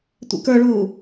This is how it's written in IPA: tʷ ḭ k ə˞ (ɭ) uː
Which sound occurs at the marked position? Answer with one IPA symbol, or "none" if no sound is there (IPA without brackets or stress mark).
ɭ